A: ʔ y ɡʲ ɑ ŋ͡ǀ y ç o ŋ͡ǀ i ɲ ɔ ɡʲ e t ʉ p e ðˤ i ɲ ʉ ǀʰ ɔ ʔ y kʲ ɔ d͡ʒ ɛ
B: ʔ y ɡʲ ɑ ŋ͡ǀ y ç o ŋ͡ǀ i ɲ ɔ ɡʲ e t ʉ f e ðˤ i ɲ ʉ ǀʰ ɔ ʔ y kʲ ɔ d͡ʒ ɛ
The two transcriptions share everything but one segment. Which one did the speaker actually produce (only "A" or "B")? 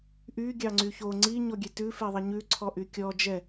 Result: B